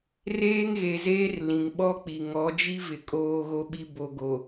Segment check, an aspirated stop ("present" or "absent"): absent